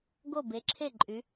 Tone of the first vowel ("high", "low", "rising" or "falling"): falling